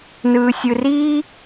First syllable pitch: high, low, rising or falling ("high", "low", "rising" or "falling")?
low